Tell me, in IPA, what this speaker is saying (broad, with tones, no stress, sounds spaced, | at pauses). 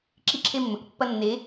ǁ i˧ ǁʰ e˧ mː ɵ˨ k pː ɐ˧ nː e˨˦